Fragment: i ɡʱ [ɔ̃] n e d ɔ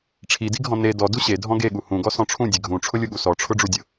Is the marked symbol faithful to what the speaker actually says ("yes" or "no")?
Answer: yes